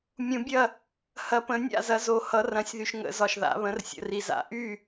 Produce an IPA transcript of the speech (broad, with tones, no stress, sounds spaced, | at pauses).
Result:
mʲ ũ˨˩˦ bʲ ɐ˥˨ | h ɐ˨ p ə̃˨˩˦ nʲ a̰˥˨ z ɐ˨˦ z o˨ h ʌ˨˦ r ɐ̃˨˦ sʲ ð y˨ ʃ ŋ ə̰˨˩˦ z ɒ˨ ʃ ð a̰˨˩˦ β ə̃˨˦ r sʲ ə̰˨ r i˨ z a̰˨˩˦ ʔ y˥˨